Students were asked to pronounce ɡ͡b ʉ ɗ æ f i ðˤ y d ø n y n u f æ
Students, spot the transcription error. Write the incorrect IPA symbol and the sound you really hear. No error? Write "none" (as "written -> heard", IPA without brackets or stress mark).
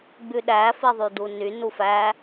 ø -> u